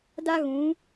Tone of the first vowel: high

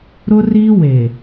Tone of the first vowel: high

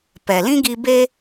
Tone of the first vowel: low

